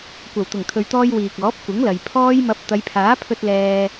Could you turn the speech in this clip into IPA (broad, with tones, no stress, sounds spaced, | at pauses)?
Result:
kʷ ɐ˨˩ w t̪ ʊ˨˩ ŋ t̪ʰ ɵ˨ ɥ t̪ ɔː˧ j w iː˨ k̚ ɔː˨˥ p̚ kʷ ɪ˨˥ ŋ l ɐ˨ j pʰ ɔː˥ j m ɐ˧ p̚ t̪ ɐ˨˧ j pʰ aː˨˥ pʰ ɵ˧ t̚ l ɛː˧